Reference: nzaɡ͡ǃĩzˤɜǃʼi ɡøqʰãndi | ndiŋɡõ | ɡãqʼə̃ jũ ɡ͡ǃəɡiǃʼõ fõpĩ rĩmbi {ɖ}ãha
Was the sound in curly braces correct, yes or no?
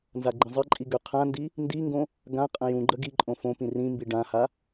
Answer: yes